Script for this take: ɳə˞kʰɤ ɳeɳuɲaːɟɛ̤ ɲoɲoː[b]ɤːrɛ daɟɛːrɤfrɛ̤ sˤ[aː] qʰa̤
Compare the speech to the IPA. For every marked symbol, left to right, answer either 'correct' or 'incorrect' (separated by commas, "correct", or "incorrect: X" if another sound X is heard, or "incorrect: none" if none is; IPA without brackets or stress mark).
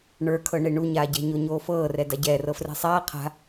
incorrect: f, correct